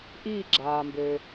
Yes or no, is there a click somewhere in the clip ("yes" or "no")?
yes